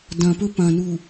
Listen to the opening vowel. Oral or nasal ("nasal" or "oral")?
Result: nasal